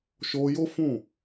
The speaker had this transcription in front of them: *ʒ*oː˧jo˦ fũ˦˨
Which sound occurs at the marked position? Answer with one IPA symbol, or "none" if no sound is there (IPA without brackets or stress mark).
ʃ